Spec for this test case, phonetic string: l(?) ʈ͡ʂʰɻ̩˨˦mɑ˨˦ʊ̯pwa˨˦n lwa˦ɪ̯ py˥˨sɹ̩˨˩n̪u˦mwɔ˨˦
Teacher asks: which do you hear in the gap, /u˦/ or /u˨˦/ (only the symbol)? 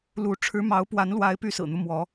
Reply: u˨˦